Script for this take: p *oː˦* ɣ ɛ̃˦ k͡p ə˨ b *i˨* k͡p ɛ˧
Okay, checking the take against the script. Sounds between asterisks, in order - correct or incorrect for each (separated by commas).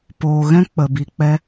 incorrect, correct